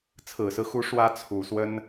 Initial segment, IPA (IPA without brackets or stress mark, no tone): t͡sʰ